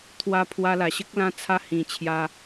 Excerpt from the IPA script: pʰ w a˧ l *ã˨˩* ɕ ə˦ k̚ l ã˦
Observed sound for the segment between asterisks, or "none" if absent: a˨˩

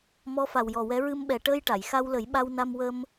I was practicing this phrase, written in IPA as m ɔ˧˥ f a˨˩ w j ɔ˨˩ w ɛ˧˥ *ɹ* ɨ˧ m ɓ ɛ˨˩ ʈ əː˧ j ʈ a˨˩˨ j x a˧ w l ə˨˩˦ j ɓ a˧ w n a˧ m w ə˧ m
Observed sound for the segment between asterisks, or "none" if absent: ɹ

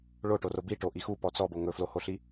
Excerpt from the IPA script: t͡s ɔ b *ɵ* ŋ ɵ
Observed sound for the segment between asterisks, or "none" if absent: o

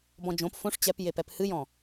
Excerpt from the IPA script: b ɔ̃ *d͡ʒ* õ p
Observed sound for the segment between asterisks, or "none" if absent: d͡ʒ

